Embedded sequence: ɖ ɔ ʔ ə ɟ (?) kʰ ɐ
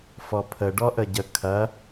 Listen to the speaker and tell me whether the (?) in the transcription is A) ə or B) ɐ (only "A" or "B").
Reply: A